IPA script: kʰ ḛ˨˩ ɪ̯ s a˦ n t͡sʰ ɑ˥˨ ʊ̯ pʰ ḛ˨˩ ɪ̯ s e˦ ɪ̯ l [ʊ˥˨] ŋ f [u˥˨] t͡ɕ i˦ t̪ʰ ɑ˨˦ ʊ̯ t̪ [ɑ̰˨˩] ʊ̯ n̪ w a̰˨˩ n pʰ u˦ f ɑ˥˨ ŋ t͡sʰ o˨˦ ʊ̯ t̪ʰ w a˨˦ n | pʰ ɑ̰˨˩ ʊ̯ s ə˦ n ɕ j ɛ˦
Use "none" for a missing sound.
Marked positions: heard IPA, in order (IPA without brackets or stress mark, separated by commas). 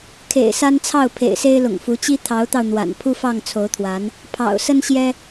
ʊ̰˨˩, u˨˦, ɑ˧